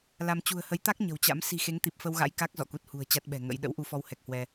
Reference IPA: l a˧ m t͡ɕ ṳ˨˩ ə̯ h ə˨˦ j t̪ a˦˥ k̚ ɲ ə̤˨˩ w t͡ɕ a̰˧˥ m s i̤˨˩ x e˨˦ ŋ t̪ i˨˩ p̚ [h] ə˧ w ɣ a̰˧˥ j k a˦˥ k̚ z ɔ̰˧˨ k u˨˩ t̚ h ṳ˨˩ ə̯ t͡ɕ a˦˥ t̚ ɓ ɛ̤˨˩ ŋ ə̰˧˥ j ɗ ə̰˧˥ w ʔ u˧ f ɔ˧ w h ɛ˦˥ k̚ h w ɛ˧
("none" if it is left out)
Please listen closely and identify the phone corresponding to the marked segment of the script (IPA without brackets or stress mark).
f